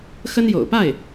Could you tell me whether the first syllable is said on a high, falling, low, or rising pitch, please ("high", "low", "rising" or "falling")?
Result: high